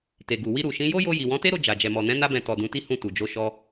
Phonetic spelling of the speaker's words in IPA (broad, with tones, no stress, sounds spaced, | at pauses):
t e˨ ɡ u˨ w i˧ ɾ u˨ ʃ ĩ˨˦ j o˦ j o˧ j i˨ w ɔ̃˨˦ t e˦ ɾ o˧ d͡ʒ a˨ d͡ʒ ɛ˨ m ɔ˨ n ɛ̃˨˦ n a˦ b ɛ̃˧ t ɔ˨ d ũ˨˦ t i˦ h ũ˦˨ t u˨ d͡ʒ o˧ ʃ ɔ˧